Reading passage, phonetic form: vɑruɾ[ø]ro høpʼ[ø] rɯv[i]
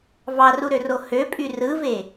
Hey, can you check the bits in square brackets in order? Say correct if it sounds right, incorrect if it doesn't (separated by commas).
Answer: correct, incorrect, incorrect